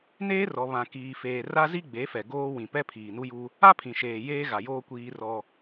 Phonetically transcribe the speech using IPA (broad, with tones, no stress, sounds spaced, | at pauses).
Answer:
n eː˦ r ɔ˨ β ã˨ k iː˨ f eː˨ r a˦ z i˦ ɡ͡b e˨˦ f ɛ˨ ɡ oː˦ w ĩ˨ p ɛ˦ pʰ iː˨ n u˦ j u˦ | a˦ pʰ ĩ˨ ʃ eː˨ j eː˦ ɣ a˨ j oː˦ kʷ iː˦ r ɔ˦